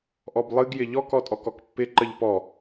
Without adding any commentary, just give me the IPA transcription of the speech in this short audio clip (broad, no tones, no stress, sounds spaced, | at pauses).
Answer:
ʔ ɔ b lˠ ɨ ɡ j ɪ ʎ ɔ k ɔ tʼ ɔ k ɔ k pː ɪ ǃ ə ʎ p ɔ